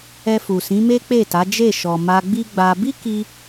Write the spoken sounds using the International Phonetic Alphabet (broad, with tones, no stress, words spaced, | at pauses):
ɛ˧fu˨sĩ˨˦me˦ k͡pe˦˨ta˨˦d͡ʒe˦˨ ʃɔ˨ ma˧ ɡ͡bi˦ɡ͡ba˧ bi˦ki˧